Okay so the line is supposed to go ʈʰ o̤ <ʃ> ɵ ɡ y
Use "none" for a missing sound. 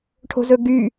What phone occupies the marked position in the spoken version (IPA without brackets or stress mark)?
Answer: z